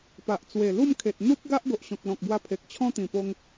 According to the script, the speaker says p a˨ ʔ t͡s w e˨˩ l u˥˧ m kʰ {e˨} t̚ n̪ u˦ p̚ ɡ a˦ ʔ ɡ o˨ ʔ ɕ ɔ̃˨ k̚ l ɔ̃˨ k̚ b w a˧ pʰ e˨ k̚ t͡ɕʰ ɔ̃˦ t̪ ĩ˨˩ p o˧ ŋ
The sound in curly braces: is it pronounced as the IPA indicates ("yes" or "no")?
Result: yes